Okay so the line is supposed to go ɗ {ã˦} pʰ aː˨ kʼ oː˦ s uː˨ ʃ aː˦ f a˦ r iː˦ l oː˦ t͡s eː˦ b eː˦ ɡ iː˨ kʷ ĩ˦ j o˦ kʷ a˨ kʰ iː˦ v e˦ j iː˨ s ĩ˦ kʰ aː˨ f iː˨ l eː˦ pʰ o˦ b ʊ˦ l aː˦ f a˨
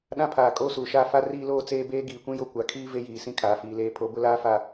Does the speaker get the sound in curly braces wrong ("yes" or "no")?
no